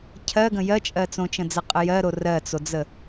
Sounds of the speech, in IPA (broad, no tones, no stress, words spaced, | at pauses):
cʰɜɡə̃ jɜt͡ʃʼɜ t͡sõt͡ʃə̃d͡zəqʼə jɜɾo rɜt͡sod͡zə